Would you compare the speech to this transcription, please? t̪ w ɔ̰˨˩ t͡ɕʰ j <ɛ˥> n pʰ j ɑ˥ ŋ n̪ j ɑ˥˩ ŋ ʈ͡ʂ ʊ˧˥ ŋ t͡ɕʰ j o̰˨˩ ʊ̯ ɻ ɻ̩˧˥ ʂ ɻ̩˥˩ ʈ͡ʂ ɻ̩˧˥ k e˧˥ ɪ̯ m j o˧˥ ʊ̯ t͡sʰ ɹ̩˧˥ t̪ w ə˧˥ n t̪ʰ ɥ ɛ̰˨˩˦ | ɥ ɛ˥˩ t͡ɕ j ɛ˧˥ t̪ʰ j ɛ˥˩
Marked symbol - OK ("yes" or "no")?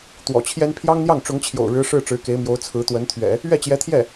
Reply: yes